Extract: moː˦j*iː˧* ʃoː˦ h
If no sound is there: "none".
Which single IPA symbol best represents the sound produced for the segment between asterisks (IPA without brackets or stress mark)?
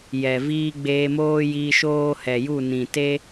iː˧